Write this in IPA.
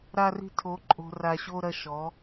ɾa˥ ri̤˥tʰo˧˥ǃʼo̤˧ ra˧ɕo˥ ɾɐ˧ʃɔ˩˧

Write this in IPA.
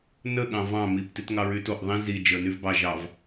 nə ɠɑ̃vɑ̃ mip titŋɑɹytoʔ ðˤĩ zi d͡ʒə˞nyvbɑ ʒɑv

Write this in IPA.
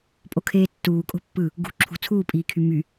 pʼokʰeːtːuː kʼo̤pːɯ | ɡṳ ǁʰṳ t͡sʰuːpʼiːkʰy my

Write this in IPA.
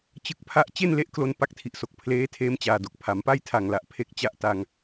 t͡ɕɯ˨˩k̚pʰa˦˥ʔ t͡ɕe˥˩nle˦˥ʔklo˧n pa˥˩k̚tʰi˨˩ʔso˨˩k̚ pʰleː˦˥tʰeː˦˥m t͡ɕaː˨˩do˨˩k̚ pʰa˩˦mpa˥˩jtʰa˨˩ŋla˨˩ʔ pʰe˦˥k̚t͡ɕa˦˥ʔta˧ŋ

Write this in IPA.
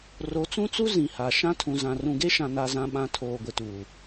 ro˨˦t͡sũ˦t͡su˦ zĩ˨ha˨ ʃã˦tʰũ˨zã˨ rũ˨ɡe˦ʃã˨ na˨zã˨ɓã˨ tʰoː˨ɡʷɪ˨tuː˨

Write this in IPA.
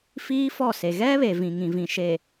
fiː˦fɔ˦˨se˨ ɣɛ˦βe˨vĩ˨ ŋĩ˨vĩ˨ʃe˨

